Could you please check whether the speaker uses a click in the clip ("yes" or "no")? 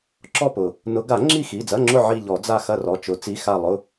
yes